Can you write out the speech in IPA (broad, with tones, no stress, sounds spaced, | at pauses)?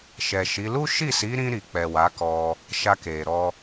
ʃ ɛ˨ ʃ i˨˦ l u˦ ʃ i˦˨ s i˨˦ ɾ ĩ˧ ɾ i˨ k͡p ɛ˨ w a˨˦ k ɔ˧ | ʃ a˧ k e˨ ɾ ɔ˧